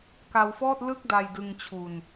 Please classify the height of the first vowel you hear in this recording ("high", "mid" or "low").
low